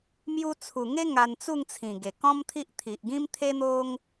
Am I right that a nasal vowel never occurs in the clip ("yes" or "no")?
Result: no